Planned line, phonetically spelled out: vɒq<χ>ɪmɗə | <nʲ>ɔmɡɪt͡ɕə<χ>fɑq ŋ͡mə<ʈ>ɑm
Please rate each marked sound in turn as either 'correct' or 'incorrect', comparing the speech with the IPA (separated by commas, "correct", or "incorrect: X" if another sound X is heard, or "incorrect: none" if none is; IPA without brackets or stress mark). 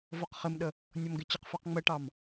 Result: correct, correct, incorrect: q, correct